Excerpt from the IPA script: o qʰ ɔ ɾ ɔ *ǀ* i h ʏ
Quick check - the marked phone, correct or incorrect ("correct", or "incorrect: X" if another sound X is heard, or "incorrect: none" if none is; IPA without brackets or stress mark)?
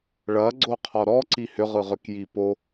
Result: correct